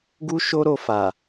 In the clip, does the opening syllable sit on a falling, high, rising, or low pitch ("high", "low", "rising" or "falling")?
high